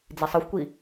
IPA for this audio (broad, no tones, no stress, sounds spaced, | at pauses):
d͡z i sˤ ɯ xʷ kʷ i